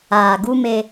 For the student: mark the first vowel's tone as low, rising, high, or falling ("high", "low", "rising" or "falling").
low